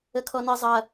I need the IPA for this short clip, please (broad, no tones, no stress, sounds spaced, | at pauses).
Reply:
ə kʰ ɔ n ɪ zˤ ɐ